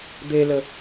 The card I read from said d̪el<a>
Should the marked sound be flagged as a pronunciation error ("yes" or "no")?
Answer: yes